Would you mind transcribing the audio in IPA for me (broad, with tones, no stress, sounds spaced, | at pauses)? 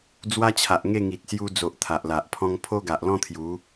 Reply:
d͡z w a˦ t͡ɕʰ a˨ ʔ ŋ e˥˧ ŋ i˨ t̚ s j u˧ d͡z o˨ ʔ t̪ʰ a˨ ʔ l a˨ ʔ pʰ ɔ̃˦ ŋ pʰ o˦ ɡ a˨ ʔ l ɔ̃˦ t̪ʰ j u˨˦